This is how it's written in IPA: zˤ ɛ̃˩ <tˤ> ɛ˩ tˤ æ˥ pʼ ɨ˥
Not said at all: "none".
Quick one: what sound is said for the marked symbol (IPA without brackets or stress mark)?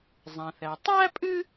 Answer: θ